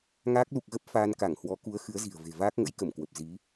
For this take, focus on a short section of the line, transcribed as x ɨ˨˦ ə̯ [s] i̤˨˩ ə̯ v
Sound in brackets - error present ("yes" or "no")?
yes